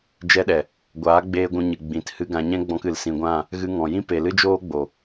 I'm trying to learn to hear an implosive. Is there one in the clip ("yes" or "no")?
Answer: yes